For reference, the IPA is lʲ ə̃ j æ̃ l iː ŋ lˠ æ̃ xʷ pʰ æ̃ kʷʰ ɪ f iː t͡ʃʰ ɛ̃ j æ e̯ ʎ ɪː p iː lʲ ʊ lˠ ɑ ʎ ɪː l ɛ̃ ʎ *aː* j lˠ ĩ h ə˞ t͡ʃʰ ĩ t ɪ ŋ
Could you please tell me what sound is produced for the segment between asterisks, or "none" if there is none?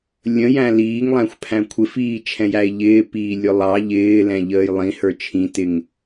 əː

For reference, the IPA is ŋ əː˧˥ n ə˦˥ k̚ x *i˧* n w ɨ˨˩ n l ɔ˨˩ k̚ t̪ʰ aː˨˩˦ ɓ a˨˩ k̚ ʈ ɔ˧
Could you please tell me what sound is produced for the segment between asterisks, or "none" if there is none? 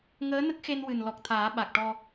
e˧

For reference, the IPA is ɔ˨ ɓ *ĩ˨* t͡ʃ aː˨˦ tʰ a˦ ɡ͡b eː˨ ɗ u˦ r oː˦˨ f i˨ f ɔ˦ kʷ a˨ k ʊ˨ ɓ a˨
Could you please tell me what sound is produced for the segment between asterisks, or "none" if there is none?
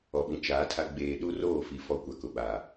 ĩ˨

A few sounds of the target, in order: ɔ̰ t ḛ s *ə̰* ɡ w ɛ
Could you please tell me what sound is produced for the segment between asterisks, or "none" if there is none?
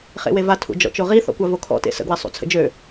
ə̰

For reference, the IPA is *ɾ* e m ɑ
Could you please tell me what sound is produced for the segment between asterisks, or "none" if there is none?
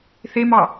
θ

